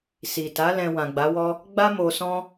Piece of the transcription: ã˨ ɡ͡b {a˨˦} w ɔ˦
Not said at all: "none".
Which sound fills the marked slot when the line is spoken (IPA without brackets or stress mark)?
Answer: a˨˦